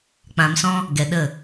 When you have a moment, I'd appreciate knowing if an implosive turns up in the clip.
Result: yes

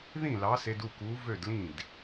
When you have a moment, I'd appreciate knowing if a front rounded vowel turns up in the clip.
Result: yes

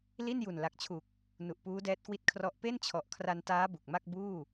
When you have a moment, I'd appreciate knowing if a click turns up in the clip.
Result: no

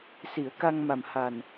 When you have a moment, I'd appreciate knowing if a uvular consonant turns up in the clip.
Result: no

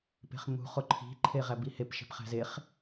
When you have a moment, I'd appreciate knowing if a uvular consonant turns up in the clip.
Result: yes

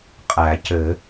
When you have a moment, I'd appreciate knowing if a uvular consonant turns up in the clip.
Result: yes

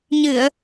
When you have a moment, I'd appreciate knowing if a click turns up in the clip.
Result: no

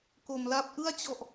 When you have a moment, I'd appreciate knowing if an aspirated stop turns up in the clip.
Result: no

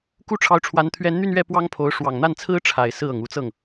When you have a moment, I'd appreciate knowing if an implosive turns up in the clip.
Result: no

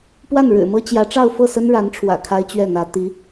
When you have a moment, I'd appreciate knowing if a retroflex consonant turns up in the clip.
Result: yes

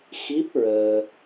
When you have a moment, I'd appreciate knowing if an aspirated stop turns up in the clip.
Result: no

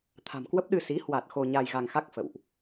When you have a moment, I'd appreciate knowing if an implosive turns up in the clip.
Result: yes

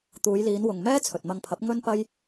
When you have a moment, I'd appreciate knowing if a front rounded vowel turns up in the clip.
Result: no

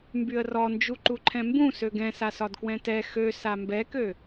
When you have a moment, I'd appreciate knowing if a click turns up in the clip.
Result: yes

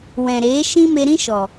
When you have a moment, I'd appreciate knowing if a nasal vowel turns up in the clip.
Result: yes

